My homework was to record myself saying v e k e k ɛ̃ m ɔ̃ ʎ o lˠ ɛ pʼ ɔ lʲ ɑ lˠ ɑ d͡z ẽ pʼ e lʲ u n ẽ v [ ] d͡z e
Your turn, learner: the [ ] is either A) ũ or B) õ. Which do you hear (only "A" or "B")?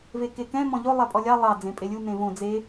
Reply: B